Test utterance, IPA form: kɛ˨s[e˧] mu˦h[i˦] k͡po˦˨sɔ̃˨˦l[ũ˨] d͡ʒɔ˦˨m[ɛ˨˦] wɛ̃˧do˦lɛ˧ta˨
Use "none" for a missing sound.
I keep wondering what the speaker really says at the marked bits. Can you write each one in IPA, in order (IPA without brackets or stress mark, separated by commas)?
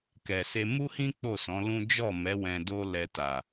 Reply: e˧, ĩ˦, ũ˦, ɛ˨˦